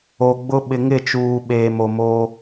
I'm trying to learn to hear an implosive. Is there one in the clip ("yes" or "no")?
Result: yes